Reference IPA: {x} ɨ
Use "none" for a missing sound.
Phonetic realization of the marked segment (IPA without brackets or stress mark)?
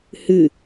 h